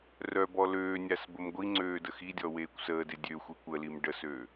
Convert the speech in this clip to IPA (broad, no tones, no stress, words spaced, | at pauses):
rœbɔ løːnʲas bəmɡʷiŋ͡ǀøː dəxidʲɔ weːkʷsəːde dʲøxʷi kʷəlim ɖəsø